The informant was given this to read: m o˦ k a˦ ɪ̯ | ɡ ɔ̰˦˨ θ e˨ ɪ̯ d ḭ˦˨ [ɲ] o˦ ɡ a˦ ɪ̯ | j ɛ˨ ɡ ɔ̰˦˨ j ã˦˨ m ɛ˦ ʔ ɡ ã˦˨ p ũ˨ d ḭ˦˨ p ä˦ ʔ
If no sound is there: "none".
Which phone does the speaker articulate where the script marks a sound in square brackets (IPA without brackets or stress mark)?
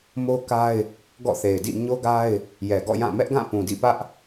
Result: ɲ